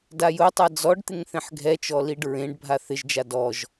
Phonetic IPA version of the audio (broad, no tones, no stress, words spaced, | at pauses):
dajʊtˤa d͡zɔɖt̪ɪŋ θẽħɡʱɛt͡ʃɔ liɖɹẽɖbʱa θɪʒd͡ʒa dɔʒ